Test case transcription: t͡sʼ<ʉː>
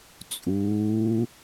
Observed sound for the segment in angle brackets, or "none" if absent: uː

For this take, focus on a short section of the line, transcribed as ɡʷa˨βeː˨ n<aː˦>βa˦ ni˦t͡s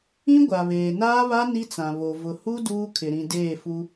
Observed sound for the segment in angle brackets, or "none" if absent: aː˦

